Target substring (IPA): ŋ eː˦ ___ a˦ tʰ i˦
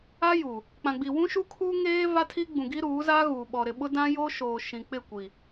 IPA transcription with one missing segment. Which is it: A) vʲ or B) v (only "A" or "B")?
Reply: B